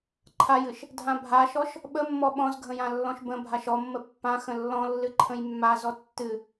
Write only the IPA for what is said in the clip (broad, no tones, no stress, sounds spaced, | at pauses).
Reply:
ǃʰ a j ɨ ʃ | dʱ ã bʱ a ʃ ɔ ʃ | ɓ ə mː ɔ ɓ ɔ̃ z ɡʱ ə̃ j ã lː ɔ̃ ʃ b ə̃ bʱ a ʃ ɔ mː ə pː ã x ə̃ lː ɔ̃ lː ɨ ǃʰ ə̃ j mː a z ɔ tː ɨ